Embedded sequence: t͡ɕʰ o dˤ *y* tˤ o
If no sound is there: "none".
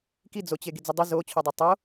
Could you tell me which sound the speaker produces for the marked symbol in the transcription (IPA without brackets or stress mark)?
e